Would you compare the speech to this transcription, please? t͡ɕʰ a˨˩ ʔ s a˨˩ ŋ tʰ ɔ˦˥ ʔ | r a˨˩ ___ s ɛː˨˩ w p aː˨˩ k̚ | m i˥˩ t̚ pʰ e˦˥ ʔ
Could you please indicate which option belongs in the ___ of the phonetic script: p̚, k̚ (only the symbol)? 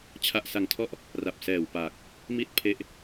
p̚